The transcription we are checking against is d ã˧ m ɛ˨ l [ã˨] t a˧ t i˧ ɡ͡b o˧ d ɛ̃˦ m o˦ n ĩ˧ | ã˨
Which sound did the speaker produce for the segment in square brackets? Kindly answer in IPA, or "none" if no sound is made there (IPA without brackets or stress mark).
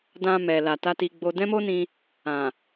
a˨